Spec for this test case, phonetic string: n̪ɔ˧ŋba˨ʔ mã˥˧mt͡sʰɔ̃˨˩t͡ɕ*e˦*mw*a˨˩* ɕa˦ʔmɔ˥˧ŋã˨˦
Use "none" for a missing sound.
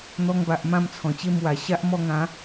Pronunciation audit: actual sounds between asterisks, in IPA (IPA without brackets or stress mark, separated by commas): e˥˧, a˨˩